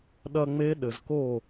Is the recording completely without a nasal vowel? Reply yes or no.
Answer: yes